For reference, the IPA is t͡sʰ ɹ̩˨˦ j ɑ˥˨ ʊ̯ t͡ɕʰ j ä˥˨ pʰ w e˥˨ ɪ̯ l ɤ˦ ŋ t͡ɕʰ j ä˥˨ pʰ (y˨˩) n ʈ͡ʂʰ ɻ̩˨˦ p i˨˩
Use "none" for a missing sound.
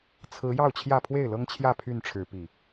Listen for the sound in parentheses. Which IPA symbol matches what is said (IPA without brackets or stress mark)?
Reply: y˥˨